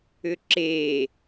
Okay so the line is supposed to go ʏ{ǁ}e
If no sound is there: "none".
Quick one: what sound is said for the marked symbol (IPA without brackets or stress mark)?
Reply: ǁ